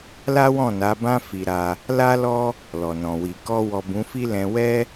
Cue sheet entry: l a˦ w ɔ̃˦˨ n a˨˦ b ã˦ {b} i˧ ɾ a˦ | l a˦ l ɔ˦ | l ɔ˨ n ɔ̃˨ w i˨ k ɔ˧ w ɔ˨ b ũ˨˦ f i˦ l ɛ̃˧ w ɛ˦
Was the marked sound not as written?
yes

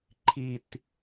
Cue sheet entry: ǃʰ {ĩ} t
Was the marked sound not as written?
yes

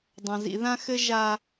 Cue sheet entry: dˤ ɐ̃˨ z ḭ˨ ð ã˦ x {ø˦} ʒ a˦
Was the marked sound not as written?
yes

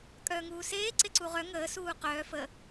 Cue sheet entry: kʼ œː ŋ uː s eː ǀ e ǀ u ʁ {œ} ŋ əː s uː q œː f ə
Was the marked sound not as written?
no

